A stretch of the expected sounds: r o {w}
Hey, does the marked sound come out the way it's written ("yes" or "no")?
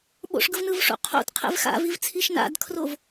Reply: no